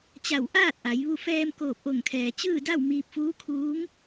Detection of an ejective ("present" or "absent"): absent